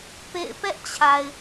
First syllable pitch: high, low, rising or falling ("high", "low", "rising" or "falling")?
falling